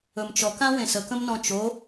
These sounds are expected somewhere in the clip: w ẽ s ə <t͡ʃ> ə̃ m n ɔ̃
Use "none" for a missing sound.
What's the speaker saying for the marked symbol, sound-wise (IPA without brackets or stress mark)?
k